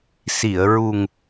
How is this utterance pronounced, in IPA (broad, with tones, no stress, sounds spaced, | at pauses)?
s i˨˩˨ ə̯ ɹ u˨˩ ŋ